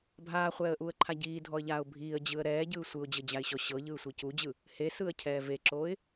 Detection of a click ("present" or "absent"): present